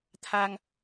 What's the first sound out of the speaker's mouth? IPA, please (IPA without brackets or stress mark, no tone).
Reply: t̪ʰ